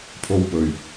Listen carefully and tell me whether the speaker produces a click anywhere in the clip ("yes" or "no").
no